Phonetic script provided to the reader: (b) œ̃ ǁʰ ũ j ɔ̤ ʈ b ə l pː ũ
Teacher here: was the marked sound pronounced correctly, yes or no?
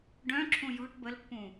no